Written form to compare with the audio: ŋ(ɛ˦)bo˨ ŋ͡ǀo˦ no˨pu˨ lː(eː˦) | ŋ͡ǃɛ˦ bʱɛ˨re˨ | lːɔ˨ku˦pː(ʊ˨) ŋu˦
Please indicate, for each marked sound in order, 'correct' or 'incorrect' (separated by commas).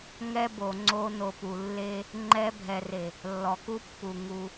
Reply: correct, incorrect, incorrect